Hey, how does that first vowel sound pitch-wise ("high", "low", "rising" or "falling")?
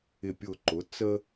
falling